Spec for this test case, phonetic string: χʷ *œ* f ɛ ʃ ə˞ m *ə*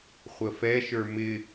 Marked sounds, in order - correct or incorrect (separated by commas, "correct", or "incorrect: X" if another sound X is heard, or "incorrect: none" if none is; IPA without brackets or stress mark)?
incorrect: ə, incorrect: ɪ